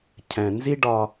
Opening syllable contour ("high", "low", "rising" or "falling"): low